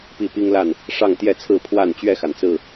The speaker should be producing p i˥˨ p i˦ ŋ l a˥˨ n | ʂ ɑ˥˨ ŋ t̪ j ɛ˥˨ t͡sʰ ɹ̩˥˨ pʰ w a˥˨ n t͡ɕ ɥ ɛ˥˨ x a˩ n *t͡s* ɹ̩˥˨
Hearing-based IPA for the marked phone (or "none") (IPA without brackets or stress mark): t͡s